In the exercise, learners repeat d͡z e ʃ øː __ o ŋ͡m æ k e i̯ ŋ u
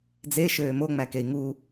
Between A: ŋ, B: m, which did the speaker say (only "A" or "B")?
B